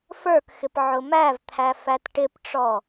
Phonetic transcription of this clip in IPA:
f ə˞ k x ɪ p ʕ ʊ m æ v t̪ʰ æ f æ t ʈ ɪ p ʈ͡ʂ ɔ

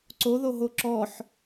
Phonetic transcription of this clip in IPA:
ǀ o ð o ɦ o ǁ ɔ ħ

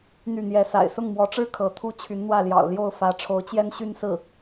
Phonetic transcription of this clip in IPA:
n̪ y˥˩ n̪ j ɛ˧˥ s a̰˨˩ ɪ̯ s ʊ˥˩ ŋ m w ɔ˧˥ ʈ͡ʂ ɻ̩˥ kʰ ɤ˧˥ t̪ʰ u˥ t͡ɕʰ y˧˥ n n̪ w ä˥˩ l j ɑ̰˨˩ ʊ̯ l j o˥˩ ʊ̯ f ä˧˥ ʈ͡ʂʰ o˧˥ ʊ̯ t͡ɕ j ɛ˥ n ɕ y˥˧ n s ɹ̩˥˩

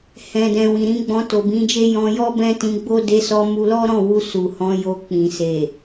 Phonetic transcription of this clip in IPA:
h ɛ̃˨ d ɛ̃˨ w ĩ˨ ɾ ĩ˧ ɡ͡b ɔ̃˧ t o˨ b ĩ˧ d͡ʒ e˦ j ɔ̃˧ j ɔ˦ b ɛ̃˦ t ĩ˧ ɡ͡b o˦ d e˧ s ɔ˧ m u˧ l ɔ˦ ɾ ɔ̃˦˨ w u˧ s u˨ h ɔ̃˧ j o˧ k͡p ĩ˨ s e˨

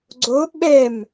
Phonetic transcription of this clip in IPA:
ɡ͡ǀ o ɓ ɛ m

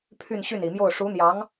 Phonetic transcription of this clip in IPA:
pʰ y˥˧ n ɕ y˥˩ n i˨˩ m j o˥˩ ʊ̯ ʂ u˧˥ n̪ j ɑ˧˥ ŋ

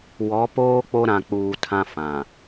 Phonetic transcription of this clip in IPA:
w ɔ˨˦ p oː˦ k͡p o˦ ɾ ã˨ k͡p uː˨ tʰ ã˦ f ã˨

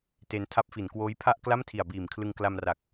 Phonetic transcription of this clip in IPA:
t e˧ n tʰ a˦˥ p̚ f i˩˦ n k w oː˦˥ j pʰ a˥˩ ʔ k l a˥˩ m tʰ i˨˩ a̯ b iː˨˩ m kʰ l ɯ˧ ŋ k l a˧ m r a˨˩ k̚

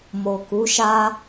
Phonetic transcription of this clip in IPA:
m o˨ k u˨˦ ʃ a˦

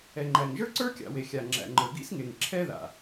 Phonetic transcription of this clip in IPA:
ɛ˩ ŋ͡ǃ æ˩ ŋ ʒ ə˞˥ ǀ ə˞˥ kʲ a̰˩ w e˩ xʲ a˩ ŋ͡ǁ æ̰˩ ŋ͡ǃ ə˞˩ ɡ ḭ˥ s ŋ e˩ ŋ ǁʰ ɛ˥ ð a̰˩

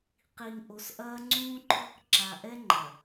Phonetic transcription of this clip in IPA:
q i˨ ŋ ʔ o˨ s ʔ ɐː˦ ŋ͡ǀ ũː˦ ǃʰ ɔ˦ k ǁ a˨ ʔ ɛ˦ ŋ͡ǃ ɐ˨

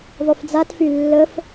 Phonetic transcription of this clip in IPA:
ðˤ y f d͡z a t f y lː ə f

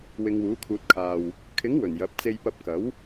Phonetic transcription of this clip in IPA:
w ɪ˨˧ ŋ w uː˨˥ kʰ uː˧ t̚ kʰ aː˧ w | kʰ ɪ˨˥ ŋ w ɵ˨˩ n j ɐ˨˥ p̚ t͡s e˧ j p ɐ˧ p̚ k ɐ˨˥ w

